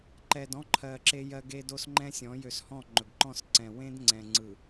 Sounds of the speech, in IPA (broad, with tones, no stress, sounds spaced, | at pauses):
ǃ ɛ˨ d ɔ̃˦ ǃʰ ɜ˨ ǁ e˦ j ɜ˦ ɡ e˦ d o˦ s ŋ͡ǃ ɛ̃˦ sʲ ɔ̃˨˦ j ø˨ s h ɔ̃˦˨ ŋ͡ǃ ɵ˨ ɡ ǃ ɔ̃˦˨ s ǀ ɛ̃˨ w ẽ˦ d ŋ͡ǀ ɛ̃˨ ŋ͡ǀ ɯ˨